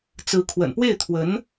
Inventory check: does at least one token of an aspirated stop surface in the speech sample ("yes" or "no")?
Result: yes